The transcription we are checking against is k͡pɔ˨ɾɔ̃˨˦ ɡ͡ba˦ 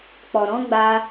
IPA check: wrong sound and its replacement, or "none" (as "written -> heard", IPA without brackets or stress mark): none